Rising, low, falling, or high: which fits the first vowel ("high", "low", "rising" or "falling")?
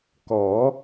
rising